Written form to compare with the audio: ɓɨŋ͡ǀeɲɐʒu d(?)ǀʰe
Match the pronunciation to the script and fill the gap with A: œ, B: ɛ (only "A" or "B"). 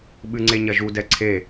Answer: B